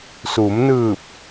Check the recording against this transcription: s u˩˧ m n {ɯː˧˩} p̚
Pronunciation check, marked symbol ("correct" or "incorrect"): correct